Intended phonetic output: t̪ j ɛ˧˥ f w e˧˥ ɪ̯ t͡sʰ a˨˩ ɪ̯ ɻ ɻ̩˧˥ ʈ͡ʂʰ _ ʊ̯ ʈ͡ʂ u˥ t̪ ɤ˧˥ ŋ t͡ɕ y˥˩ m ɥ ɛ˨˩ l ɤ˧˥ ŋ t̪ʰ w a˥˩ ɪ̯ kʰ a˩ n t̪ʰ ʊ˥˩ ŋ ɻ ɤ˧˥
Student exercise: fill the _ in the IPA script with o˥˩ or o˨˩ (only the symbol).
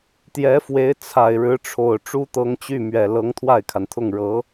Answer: o˨˩